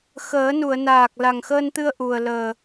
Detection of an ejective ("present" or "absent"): absent